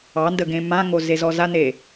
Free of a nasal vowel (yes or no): no